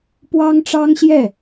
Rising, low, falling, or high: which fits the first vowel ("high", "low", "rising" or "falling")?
high